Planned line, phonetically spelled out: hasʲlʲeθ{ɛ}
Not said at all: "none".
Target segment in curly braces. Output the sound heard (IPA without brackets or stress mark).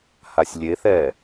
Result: ɛː